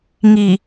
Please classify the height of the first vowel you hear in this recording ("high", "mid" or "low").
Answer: high